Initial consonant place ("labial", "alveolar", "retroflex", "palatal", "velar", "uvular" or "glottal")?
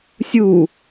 alveolar